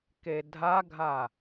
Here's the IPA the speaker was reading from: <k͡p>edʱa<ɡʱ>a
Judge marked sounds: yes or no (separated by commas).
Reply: no, yes